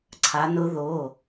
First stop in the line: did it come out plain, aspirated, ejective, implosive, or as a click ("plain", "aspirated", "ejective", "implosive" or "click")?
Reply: click